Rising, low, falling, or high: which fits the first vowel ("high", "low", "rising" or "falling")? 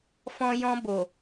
low